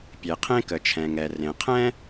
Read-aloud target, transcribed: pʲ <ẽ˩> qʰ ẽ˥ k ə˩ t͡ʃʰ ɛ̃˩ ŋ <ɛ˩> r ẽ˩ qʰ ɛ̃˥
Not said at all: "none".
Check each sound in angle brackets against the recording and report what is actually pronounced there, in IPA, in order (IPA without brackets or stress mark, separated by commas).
e˩, ɛ˩